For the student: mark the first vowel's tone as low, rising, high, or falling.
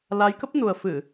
rising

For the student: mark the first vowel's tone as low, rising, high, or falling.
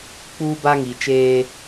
high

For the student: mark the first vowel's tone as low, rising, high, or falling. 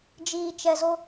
low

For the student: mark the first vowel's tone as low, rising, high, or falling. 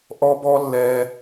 high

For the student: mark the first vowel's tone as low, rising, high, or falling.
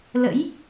rising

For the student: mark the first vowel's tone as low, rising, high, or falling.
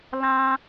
high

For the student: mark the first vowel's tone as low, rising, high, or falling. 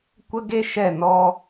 high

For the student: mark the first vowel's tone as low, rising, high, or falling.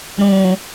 low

